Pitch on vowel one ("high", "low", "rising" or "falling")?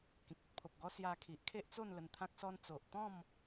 low